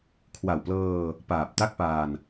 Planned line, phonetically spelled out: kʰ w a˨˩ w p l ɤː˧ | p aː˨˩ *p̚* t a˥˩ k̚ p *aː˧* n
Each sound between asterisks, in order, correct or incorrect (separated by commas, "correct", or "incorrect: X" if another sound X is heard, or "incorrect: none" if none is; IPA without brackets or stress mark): correct, correct